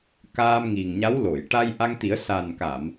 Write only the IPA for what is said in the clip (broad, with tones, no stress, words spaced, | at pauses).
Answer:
kaː˧mŋi˨˩ŋɲa˧˥w lo˨˩˨j ʈa˧jʔa˧ŋt̪i˨˩˦ə̯ sa˨˩nka˨˩˨m